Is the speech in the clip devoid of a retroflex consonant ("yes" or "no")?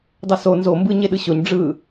no